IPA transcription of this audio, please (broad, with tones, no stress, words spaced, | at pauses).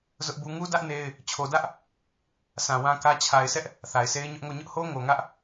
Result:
zʊ˦ʔbu˦ ŋu˦dä˦ʔ ne˦ɪ̯ | t͡ɕʰo˨dä˦ʔ | sã˨ wã˦kä˦ t͡ɕʰa˨ɪ̯ sɛ˦ʔ | θa˨ɪ̯sʰe˦ɪ̯ɲʊ˦ʔŋo˦˨ ɲʊ˦ʔho˦ ŋo˨ŋä˦ʔ